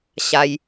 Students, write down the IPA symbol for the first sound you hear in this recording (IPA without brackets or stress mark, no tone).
ɕ